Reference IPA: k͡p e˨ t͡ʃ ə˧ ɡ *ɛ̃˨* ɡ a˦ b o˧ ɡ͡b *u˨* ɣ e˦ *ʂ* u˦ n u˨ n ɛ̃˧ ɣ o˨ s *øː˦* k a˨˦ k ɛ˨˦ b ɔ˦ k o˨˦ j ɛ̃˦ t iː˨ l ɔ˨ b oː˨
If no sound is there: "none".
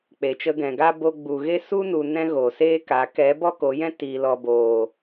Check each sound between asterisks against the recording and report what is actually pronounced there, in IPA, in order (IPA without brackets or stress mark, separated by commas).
ɛ̃˨, u˨, s, eː˦